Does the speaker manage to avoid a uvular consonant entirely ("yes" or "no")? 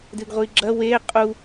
no